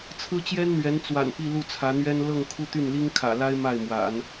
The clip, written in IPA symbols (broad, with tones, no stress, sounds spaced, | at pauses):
t͡sʰ ɹ̩˥ t͡ɕ j ɛ˥ n n̪ ɥ ɛ˧˥ n t͡s w a̰˨˩ n p i˥˧ l u˥˩ t͡sʰ ä˧˥ n̪ ɥ ɛ˥ n l ɤ˥˧ ŋ kʰ u˥˧ t̪ y˥˩ n l i˥ ŋ kʰ ä̰˨˩ l a˥ ɪ̯ m a˥˩ ɪ̯ m w a̰˨˩˦ n